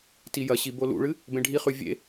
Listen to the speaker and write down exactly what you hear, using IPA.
t i j ɐ ɕ i b o l ṵ ɭ ɨ | b ẽ ɖʱ i χ ʉ vʲ ḛ

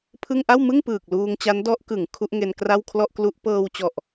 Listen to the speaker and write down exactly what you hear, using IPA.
pʰ ɯ˥˩ ŋ ʔ a˥˩ w m ɯ˥˩ ŋ p ɯː˨˩ k̚ l uː˧ ŋ t͡ɕ a˦˥ n d ɔ˦˥ ʔ k ɯ˩˦ ŋ kʰ u˦˥ ʔ ŋ e˧ n k r a˥˩ w kʰ l ɔ˥˩ ʔ k l u˦˥ ʔ p ɤː˧ w t͡ɕ ɔ˨˩ ʔ

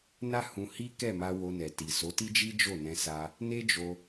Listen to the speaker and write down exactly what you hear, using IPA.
n a˦ h ũ˧ h i˦ k ɛ˦˨ m a˧ w o˧ n ɛ˨ t i˨ s o˨˦ t i˦ d͡ʒ i˦ d͡ʒ o˦˨ n ɛ̃˧ s a˧ | n e˦ d͡ʒ o˧

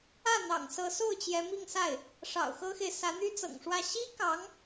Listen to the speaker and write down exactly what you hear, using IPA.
ä˥˩ n̪ ɑ̰˨˩ ŋ s ɤ˧˥ s o˥˩ ʊ̯ t͡ɕ j ɛ˧˥ m i˥˧ ŋ s a˥˩ ɪ̯ | ʂ ɑ̰˨˩ ʊ̯ x ɤ˥ x e˨ ɪ̯ s ä˧˥ n̪ y˥ t͡s ɤ̰˨˩ ŋ ʂ w ä˥˩ ɕ i˥ k ɑ˧˥ ŋ

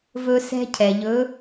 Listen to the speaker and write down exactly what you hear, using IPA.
v ɵ˦ s ɛ̤˦ cʰ ɛ˨ ʎ ɵ˨˦

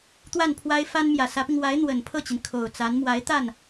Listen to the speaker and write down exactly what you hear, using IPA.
t̪ w a˥˩ n pʰ w a˥ ɪ̯ f a˥ n m j ä˨˩ s ä˧˥ p i˧ ŋ w a˧˥ ɪ̯ n̪ w ə˨˩ n pʰ ɤ˥˩ t͡ɕ i˩ n kʰ o˨˩ ʊ̯ t͡s a˧˥ n m w a˧˥ ɪ̯ t̪ a˥˩ n

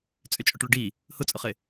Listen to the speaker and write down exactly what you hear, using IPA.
t͡sʼ ʏ t͡ʃʼ ʊ ʈ ɭ ʊ ɖ i | h ʊ t͡sʼ ʊ χ ɪ

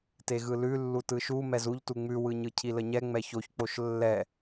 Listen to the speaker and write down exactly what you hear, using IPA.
t e ɣ ɯ l ʉ lː u t ɯ ʃ u m ɛ z u ʎ t u ŋ͡m ʉ w ɯ ɲ ɯ cʰ i l ə ɲ ɛ ŋ͡m ɛ ç o ç k͡p o ʃ lː ɛ

